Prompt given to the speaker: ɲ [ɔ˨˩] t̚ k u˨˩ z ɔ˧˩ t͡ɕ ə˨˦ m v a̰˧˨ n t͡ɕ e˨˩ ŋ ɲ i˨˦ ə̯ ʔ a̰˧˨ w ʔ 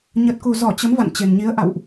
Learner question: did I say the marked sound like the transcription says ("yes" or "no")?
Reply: no